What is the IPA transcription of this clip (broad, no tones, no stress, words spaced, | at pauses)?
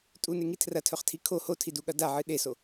tʼuneŋi tʰrɐtʰɵχtʰi kʰo hotʰiduɠɐ daʕɨ ɗeso